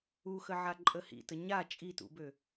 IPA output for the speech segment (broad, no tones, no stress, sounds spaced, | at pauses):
u x ə ʕ a ǃʼ ə h ḭ t ə ɲ a t͡ʃʼ i t ṵ b ø